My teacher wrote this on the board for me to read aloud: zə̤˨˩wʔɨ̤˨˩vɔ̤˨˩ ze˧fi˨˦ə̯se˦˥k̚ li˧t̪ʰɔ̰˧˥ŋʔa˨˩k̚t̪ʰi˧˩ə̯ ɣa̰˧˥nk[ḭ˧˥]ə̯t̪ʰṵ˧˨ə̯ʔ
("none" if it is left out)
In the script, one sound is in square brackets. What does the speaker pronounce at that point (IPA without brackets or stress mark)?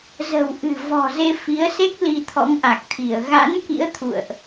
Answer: ḭ˧˥